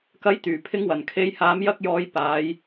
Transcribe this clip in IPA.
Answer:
k ɐ˨˥ j t̪ yː˨˩ pʰ ɪ˨˧ ŋ w ɐ˨˩ n kʰ e˨˧ j h aː˨˧ m j ɐ˧ k̚ j ɔː˨˧ j p aː˨˧ j

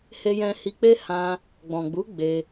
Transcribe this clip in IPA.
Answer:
h e˧ j ɛ̃˧ h i˧ k͡p e˦ h ã˧ | ɡ͡b ɔ̃˨ ɡ͡b u˨˦ ɡ͡b e˧

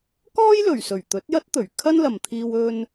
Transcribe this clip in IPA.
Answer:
k ɔː˥ j l ɵ˨˩ ɥ s ɵ˨˩ ɥ t̪ ɵ˨˥ t̚ j ɐ˥ t̚ t̪ ɵ˨˩ ɥ kʰ ɐ˥ n l ɐ˨ m t̪ʰ iː˧ w ɵ˥ n

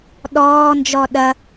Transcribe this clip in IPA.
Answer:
ɗ ɔː n d͡ʒ ɔ ɗ ɐ

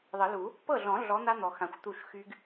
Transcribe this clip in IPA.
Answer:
ðˤ ə˨˩˦ l u˨˩˦ | p ɤ˥˩ ɮ ɔ̃˨˩˦ ɮ ɔ˨˥ n̪ a˦˥ n̪ ɔ˨ x ã˨ xʷ t̪ u˥˩ ʃ x y˦˥ ɡ

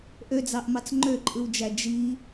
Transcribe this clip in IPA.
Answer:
ʔ ø d͡z ɑ ʔ m ɑ t͡s ŋ͡ǃ ø ǃʼ ɯ w d͡ʒ æ d͡ʒ i

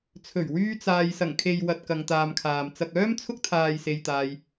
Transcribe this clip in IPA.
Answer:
t͡sʰ ɵ˨˩ ɥ w yː˥ t͡s aː˧ j s ɐ˨˩ ŋ kʰ e˨ j w ɐ˨ t̚ k ɐ˧ ŋ t̪ aː˧ m kʰ aː˨ m t͡s ɐ˨ k̚ œː˥ m t͡sʰ ʊ˥ k̚ t̪ʰ aː˨ j s e˧ j t̪ aː˧ j

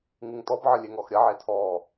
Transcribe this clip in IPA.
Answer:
ŋ ɯ ŋ t ɔ b ʕ ə lʲ e ŋ ɔ x ɾʲ ɐ ʕ e tʰ ɔː

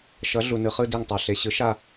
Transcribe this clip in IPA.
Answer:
ʃ ʌ˨˥ ɮ u˨ n ɯ˨ χ ɯ˦˨ d e˦˨ ŋ tˤ a˨ ɬ e˨ ɕ ɯ˨˥ ʃ a˦˨

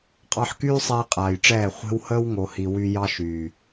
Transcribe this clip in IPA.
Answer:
qʼ ɑ˧ ħ k yː˦ sˤ ɛː˧ qʼ aː˨ j ʈ͡ʂ ɛː˦˨ χʷ e̤˦ w h əː˦ w ŋ o˨ h i˨ w y˧ j ɑ˦ ʃ yː˨

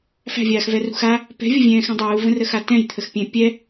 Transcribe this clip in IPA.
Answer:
f æ̤ vʲ aː x v ɛ r ṳ x a | p ɛ̤ vʲ ə vʲ ɛ̃ː x ɛ̃ dˤ uː v ə̃ r ə x a t ɛ̃ j t̪ʰ ə x pʲ ɛ̃ pʲ ɛ

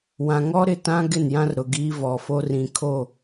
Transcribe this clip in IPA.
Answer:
w ã˨ ŋ ɔ˦ ɾ ɪ˨ t ã˦ ɡ ɪ˦˨ n j ã˦ r ɾ ʊ˨ ɡ iː˦ v ɔ˨ f o˦ r ĩ˨ kʰ o˦˨

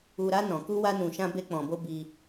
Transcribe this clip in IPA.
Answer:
u˧ ɾ a˦ n ɔ̃˧ k u˦ w a˦ n ũ˧ ʃ ã˦ b e˦ k͡p ɔ̃˧ b o˦ b i˧

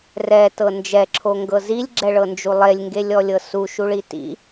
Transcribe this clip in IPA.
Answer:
r ɛ t ɤ n d͡ʒ ɛ ǁʰ o ŋ ɡ ɤ z i lʲ ɡ͡ǁ ɛ ɭ ɤ n d͡ʒ u lˠ e lʲ ŋ ɡ e lʲ ɔ lʲ ɤ s u ʃ u ɭ i t ḭ

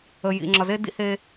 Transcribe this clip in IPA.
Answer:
ə˨ j ḭ˨ ŋ͡ǁ ɒ˨ z e˦ d ḭ˦ h e˦

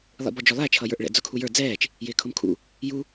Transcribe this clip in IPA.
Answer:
lˠ ḭ b ɔ d͡ʒ ʊ lˠ æ t͡ʃʰ ʌ j ə˞ ʔ ɭ ɛ̰ d͡z ʊ kʰ u j ə˞ d͡z ɛː t͡ʃ | j ɪː kʰ ʊ m kʰ ṵ | j u

